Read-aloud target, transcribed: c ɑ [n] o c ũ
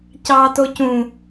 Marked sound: incorrect: t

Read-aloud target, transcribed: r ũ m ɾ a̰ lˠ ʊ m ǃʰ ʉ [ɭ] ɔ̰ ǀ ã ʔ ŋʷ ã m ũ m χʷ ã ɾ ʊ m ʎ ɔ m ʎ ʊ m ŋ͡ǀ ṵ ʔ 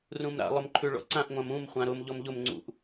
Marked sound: correct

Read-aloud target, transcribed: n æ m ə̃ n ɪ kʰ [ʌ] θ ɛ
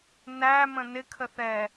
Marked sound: incorrect: ə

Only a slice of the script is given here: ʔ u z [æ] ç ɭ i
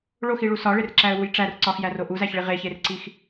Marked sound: correct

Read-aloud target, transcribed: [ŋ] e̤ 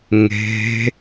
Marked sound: correct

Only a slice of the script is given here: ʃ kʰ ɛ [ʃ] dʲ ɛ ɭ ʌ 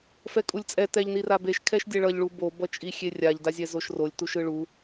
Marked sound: correct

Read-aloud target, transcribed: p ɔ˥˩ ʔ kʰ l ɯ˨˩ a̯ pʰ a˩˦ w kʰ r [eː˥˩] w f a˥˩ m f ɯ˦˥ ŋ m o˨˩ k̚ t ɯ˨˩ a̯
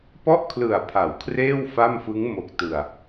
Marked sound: correct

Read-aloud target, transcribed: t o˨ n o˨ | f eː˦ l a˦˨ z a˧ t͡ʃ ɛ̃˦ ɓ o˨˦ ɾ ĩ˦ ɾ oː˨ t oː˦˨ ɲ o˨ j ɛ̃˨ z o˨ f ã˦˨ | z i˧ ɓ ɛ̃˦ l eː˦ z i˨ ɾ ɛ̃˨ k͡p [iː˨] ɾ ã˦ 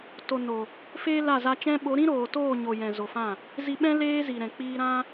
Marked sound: incorrect: iː˧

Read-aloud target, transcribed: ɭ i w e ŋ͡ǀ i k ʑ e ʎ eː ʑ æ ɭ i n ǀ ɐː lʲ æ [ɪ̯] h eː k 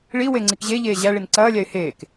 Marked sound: correct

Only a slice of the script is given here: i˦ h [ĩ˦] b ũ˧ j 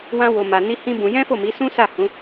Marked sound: correct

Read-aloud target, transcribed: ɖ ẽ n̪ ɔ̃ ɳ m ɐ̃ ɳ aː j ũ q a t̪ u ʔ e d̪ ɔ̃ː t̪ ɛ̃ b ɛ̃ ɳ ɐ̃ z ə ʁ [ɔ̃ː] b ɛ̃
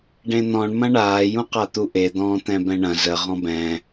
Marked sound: incorrect: ɔ̃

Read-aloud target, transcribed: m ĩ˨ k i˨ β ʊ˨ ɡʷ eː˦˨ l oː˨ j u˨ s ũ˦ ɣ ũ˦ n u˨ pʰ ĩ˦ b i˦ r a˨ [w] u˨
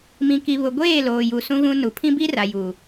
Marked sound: incorrect: j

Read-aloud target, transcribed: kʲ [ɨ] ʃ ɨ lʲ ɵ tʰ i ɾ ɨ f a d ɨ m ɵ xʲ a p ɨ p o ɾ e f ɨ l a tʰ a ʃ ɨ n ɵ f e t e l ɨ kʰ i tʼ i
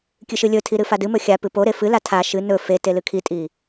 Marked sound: correct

